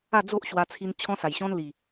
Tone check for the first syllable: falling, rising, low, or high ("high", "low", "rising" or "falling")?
falling